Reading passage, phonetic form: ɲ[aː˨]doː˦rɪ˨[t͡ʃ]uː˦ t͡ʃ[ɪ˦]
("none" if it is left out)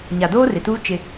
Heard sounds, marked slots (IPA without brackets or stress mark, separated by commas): a˨, t, ɪ˦